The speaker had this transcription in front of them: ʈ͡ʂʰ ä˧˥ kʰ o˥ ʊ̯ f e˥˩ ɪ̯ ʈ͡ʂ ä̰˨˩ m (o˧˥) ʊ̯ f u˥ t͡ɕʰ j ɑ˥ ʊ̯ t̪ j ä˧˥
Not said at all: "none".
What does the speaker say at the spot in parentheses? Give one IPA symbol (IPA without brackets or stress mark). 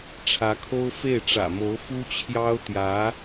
o˧˥